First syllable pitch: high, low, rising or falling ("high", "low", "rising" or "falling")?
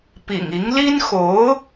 low